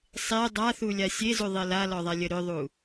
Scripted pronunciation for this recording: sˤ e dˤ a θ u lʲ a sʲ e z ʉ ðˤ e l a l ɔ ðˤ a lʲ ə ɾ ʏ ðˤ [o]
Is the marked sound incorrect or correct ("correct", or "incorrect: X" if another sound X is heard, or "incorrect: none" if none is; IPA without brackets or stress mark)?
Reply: incorrect: u